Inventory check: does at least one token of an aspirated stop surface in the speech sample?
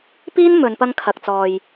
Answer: yes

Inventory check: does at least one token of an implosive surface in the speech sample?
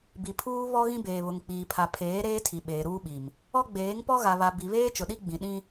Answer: yes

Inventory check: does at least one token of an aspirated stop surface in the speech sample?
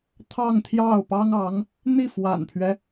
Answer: yes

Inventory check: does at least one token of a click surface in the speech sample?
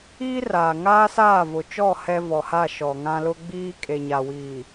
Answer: no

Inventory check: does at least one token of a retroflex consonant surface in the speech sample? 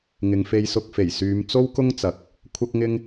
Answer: no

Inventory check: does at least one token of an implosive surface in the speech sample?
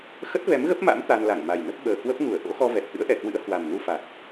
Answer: yes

